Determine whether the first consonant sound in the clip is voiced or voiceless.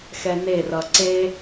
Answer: voiceless